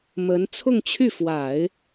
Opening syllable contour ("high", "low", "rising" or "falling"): rising